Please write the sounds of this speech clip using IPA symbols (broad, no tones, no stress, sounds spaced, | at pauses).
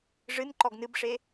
ʐ ɨ n ǃ ɔ ɡ n ɨ b ʂ e